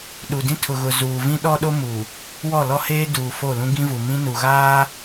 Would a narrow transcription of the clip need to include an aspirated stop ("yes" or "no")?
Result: yes